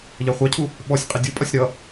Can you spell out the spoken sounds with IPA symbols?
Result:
ʎ ɑ χʷ ɑ cʰ u | ɓ ɔ sʲ qʼ e dʲ u pʼ ʌ sʲ ɾ ʌ

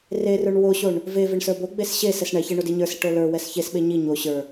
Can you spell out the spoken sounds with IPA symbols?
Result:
r e r ə˞ ɳ w o ɕ o ɳ | v e v e ɳ s ə˞ b o ɡ͡b e s ɕ e s ɛ s ɳ ɛ ç ɛ ɳ o d i ɲ ə˞ s i ʈ o l ə˞ w ɛ s ç e s ɓ e ɲ i ɲ o ɕ ə˞

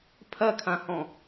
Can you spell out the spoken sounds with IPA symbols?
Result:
pʰ ɐ kʰ ã h ɔ̃

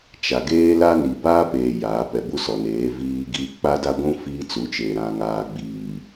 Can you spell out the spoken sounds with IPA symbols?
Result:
t͡ʃ a˨ ɡ eː˦ l a˦ n i˨ b aː˦ p eː˨ j aː˨˦ p ɛ˨ b u˦ s ɔ˨ n eː˨˦ v iː˦ ɡ iː˦ k͡p a˦ d a˦ ɡʷ ũ˦ f iː˦ t͡s u˨˦ t͡ʃ eː˨ ɾ ã˨ ŋ aː˨ ɡ͡b iː˨

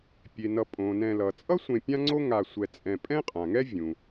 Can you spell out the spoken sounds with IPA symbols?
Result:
pʲ e˩ n ʌ˨ pʼ õ˩ n ɛ̃˨ l ʌ˩ t͡sʼ ʌ˥ sʷ ẽ˨ pʲ ã˦ ŋ͡ǀ o˦ ŋ a˨ sʷ ɛ˨ t͡sʼ ɛ̃˨ pʼ ɛ̃˥ qʼ ã˩ ŋ ɛ˥ vʲ ũ˩

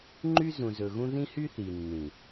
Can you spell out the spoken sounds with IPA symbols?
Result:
ŋ͡ǃ y˦ z ũ˨ z ɵ˨ ɣ ũ˦ ð ĩ˦ h y˦ θ i˨ nː ĩ˨

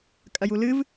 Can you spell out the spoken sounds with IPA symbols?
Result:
kʼ ɐ j u l ɨ v

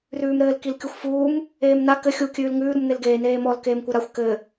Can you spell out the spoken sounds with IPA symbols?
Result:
r ʉː m ɾ ɘː l k i l kʲ u xʷ f uː m | eː m n a k ɘ xʲ u kʲ ʉː l ŋ ʉː ɾ u m n̪ e l ɡ eː n eː m ɔ l k eː m kʷ ɘ ɾ a xʷ k ɘ

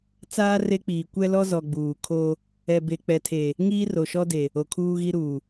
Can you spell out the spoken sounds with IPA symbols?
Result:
t͡s aː˦ r e˦ k͡p iː˨ kʷ ɛ˦ l ɔ˦ z ɔ˨ ɡ͡b uː˨ kʰ o˦ | ɛ˨ b e˨ k͡p ɛ˨ tʰ e˨ | ŋ iː˦ r o˨ ʃ ɔ˦ d e˨ | o˨ kʰ uː˦ ɣ i˦ ɾ uː˨

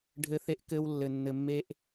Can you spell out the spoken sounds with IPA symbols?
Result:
ɖʱ ɘ˦ θ e˦ ʔ k ɘ˦ w lː ɘ˨ nː ɘ˨ mː e˦ ʔ

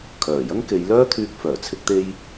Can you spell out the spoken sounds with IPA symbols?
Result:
kʰ œː˨˩ j ɐ˥ ŋ k e˨˧ j l œː˥ t̪ʰ yː˧ k̚ f œː˨˩ t͡sʰ ɪ˧ k̚ t̪ e˧ j

